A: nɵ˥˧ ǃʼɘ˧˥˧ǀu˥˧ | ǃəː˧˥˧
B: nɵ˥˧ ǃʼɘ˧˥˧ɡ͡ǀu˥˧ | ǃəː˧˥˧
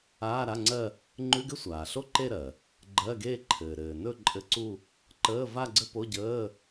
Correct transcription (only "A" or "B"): A